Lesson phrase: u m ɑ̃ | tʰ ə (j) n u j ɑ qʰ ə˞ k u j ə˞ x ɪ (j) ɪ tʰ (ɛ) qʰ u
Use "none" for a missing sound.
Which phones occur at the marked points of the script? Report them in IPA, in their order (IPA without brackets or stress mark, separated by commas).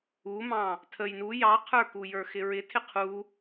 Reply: j, ɹ, ɪ